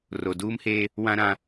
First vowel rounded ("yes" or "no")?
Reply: yes